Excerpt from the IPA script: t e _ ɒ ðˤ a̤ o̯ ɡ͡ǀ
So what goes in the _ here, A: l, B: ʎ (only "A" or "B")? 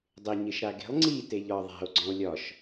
B